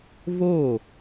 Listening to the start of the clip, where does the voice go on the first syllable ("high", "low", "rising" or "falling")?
falling